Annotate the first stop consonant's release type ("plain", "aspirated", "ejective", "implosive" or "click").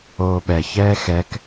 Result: implosive